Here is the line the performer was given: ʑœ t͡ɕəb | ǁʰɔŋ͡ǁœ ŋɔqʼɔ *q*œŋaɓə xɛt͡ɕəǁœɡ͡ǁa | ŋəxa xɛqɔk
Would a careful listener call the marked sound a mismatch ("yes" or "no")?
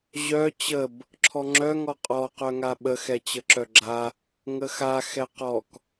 no